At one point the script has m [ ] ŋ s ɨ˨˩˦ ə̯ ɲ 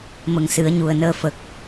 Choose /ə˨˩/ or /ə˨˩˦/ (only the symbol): ə˨˩